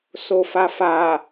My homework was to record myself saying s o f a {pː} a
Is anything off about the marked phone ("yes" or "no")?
yes